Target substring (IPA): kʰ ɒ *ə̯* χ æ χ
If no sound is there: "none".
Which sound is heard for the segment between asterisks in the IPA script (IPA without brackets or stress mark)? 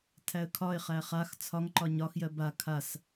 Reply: ɪ̯